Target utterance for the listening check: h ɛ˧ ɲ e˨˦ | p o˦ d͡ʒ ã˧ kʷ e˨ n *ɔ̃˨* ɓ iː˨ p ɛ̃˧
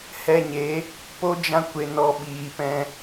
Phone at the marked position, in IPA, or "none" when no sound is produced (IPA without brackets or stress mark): ɔ˨